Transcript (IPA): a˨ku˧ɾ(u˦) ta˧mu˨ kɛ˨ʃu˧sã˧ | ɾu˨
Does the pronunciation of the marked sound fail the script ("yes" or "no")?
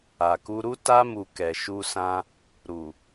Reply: no